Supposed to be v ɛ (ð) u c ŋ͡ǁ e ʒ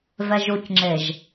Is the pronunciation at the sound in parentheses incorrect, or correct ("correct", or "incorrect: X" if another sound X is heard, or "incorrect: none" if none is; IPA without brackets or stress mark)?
incorrect: ʒ